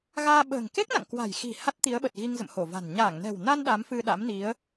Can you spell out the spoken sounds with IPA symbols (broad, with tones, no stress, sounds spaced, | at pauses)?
ɣ aː˧ ɓ ə̤ː˨˩ ŋ k e˦˥ k̚ n a̰˧˨ ŋ k w a̤˨˩ j x i̤˨˩ h a˦˥ t̚ t̪ i˨˦ ə̯ ɓ ə˨˩ t̚ ɣ i˧ ŋ z ə̰˧˨ m h o˧˩ v a̤˨˩ n ɲ aː˧˩ ŋ n ɛ̤˨˩ w n a˧ n ɗ a˨˦ m f ɨ˧ ɗ a̰˧˥ m n i˨˦ ə̯